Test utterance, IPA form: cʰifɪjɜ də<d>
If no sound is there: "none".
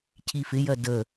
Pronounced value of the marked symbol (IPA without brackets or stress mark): none